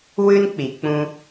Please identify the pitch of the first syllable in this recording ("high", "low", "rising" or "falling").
high